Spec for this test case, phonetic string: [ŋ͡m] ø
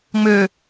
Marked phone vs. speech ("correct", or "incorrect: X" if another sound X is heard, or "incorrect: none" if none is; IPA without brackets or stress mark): correct